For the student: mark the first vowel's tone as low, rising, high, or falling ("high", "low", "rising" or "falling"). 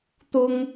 high